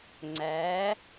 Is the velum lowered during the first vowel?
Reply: no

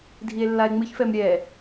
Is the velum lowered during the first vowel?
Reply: no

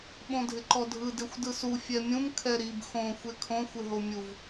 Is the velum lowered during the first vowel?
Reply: yes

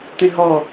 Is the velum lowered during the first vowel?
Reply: yes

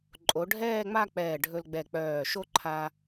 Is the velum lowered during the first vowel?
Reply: no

